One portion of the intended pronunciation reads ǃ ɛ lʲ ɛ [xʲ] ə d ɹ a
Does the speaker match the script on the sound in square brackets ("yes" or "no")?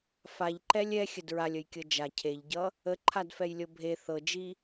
yes